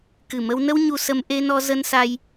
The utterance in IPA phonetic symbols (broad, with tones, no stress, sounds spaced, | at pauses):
k ɨ˨˩ m ə˧ w n ə˧ w ɲ u˧ s ə˧ m ʔ e˧ n ɔ˧ z ə˧ n s a˧ j